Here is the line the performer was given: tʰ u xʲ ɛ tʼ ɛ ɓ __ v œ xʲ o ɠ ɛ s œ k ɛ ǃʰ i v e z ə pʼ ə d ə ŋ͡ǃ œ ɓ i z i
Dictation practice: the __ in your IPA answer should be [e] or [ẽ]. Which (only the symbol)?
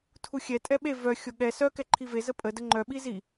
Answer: e